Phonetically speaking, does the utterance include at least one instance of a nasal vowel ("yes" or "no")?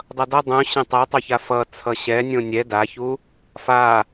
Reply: yes